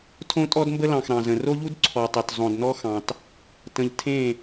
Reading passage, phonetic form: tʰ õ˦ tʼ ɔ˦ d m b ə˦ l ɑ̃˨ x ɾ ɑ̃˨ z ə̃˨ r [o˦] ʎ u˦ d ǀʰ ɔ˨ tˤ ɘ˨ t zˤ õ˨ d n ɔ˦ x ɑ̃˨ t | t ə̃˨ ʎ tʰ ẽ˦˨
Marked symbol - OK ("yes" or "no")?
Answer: yes